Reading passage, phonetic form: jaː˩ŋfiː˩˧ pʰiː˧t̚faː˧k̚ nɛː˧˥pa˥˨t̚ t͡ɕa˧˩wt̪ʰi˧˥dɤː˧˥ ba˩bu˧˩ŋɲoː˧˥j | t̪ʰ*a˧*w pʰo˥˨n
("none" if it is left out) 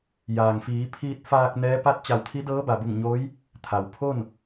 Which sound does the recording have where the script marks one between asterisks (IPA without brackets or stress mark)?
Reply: a˩